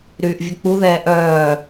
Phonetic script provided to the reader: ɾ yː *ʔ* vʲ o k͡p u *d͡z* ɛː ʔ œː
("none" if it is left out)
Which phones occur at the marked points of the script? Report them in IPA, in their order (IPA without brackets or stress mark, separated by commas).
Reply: ʔ, ð